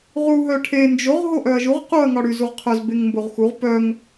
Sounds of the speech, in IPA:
ʁ u ɦ œ ʈʰ e n d͡ʒ o ʁ ɦ o ʔ œ ɐ̯ ʒ u ʁ q u ɐ̯ ŋ ɒ ɽ y z u ʁ qʰ œ z b e ŋ m b o ʁ x u ʁ p œ ŋ

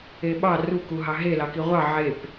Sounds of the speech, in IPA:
e ɓ ɑ r u k u ɦ ɑ ɦ e l ɑ k i ʁʷ ɑ ʕ e p

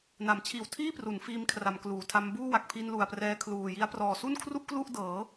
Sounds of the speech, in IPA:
n a˩˦ m t͡ɕʰ iː˨˩ w tʰ iː˥˩ p r u˩˦ n f iː˧ m kʰ r a˩˦ m k l uː˩˦ tʰ a˦˥ m b uː˥˩ w a˨˩ k̚ pʰ i˧ n l u˨˩ a̯ p r ɛː˧ kʰ l uː˨˩ j i˦˥ a̯ p r ɔː˨˩ s u˥˩ n kʰ r u˥˩ ʔ k l u˥˩ ʔ d ɤː˩˦

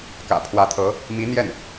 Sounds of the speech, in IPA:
k ä̰˨˩ pʰ w ä˧˥ t̪ʰ ɤ˧˥ | m i˧˥ n̪ j ɛ˥˩ n

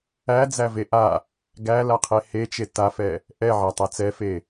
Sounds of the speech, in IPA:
æ d͡z æ v e ʔ a | ɡ æ l a qʰ e h e t͡ʃ e t a f ɛ | ʔ ɛ ʕ æ tˤ æ t͡s ɛ f e

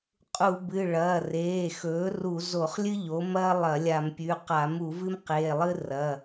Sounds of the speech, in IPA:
qʼ u˧˩˧ b ɨ˩˧˩ ɭ ɐː˩˧˩ r eː˩˧˩ x ɵː˩˥ r u˧˩˧ z o˧˩˧ χ lʲ ɨ˥ ʎ o˩˥ m ɐː˥ lˠ ɐ˧˩˧ lʲ a˧˩˧ m pʲ ʉ˩˧˩ q a˧˩˧ m u˧˩˧ v ɨ˥ m q eː˩˧˩ lˠ ɨ˥ r ɐ˩˧˩

